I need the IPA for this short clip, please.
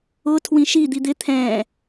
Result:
ʊ tʰwĩʃi d̪id̪ɪ t̪ʰɛ̃

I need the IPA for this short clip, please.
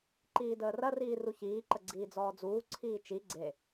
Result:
ǃiːdəːrɐriː ruçiːǃə ɡ͡ǀiːd͡zɔːd͡zuː ǀʰiːt͡ʃi ɡ͡ǀe

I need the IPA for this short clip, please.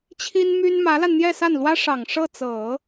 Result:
t͡ɕʰi˥nmy˥n mä˧˥la˧n n̪jɛ˥˧sa˥˩nlwä˥ ʂɑ˨˩ŋʂɤ˥˩t͡sɤ˨˩˦

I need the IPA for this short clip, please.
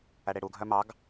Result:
æɽeɽuɡʱœ mɑɡ

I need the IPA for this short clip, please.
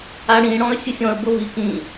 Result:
aɽĩ ɽɔ̃ə̯sʲɯsʲɔ̃ə̯ bɤvi kĩ

